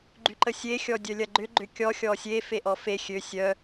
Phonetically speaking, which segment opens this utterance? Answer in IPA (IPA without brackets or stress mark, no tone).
ɡ͡ǃ